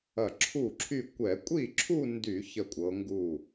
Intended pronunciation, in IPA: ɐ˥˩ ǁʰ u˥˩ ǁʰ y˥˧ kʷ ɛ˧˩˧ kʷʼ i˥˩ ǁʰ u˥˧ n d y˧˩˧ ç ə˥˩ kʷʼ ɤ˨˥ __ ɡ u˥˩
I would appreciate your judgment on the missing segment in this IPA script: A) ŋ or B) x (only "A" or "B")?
A